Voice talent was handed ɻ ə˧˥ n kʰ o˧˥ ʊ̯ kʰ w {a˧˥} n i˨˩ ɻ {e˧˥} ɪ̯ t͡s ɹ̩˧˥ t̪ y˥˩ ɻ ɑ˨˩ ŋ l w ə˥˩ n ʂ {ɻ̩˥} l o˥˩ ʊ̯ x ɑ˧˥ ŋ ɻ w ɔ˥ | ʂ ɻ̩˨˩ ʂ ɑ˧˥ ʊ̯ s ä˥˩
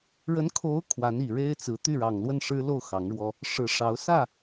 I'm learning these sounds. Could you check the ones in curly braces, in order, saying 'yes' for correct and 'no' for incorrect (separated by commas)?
yes, no, yes